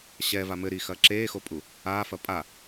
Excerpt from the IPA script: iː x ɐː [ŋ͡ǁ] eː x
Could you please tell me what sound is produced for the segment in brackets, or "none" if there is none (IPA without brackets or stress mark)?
ǁ